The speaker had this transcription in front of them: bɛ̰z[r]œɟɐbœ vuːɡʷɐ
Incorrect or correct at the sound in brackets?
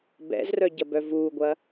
correct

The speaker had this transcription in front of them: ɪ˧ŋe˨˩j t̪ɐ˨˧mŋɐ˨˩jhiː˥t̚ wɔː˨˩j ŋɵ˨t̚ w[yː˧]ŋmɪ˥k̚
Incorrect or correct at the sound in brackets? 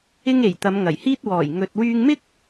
correct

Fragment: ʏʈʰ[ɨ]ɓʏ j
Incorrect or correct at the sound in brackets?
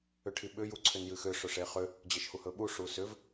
incorrect: i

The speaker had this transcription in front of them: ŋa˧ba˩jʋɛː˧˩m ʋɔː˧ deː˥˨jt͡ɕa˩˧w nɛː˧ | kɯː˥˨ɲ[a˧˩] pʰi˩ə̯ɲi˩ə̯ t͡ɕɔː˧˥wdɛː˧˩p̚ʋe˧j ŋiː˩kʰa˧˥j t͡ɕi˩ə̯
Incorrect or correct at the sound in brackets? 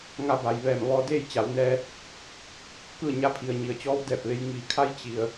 incorrect: a˧˥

